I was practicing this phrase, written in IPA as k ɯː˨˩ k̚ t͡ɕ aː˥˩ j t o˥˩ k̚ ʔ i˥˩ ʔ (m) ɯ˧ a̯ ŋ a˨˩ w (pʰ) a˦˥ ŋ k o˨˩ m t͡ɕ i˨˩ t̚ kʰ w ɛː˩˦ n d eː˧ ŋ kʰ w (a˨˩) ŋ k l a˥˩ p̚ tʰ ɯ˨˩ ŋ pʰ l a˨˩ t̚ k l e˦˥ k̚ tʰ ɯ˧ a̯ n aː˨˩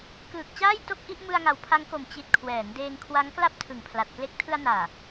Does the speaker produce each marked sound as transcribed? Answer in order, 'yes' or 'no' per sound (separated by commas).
yes, yes, no